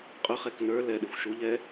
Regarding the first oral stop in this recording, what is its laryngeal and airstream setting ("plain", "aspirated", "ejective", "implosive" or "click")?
ejective